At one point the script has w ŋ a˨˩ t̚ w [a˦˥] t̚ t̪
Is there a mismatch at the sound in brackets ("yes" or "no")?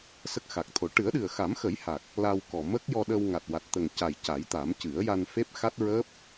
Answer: yes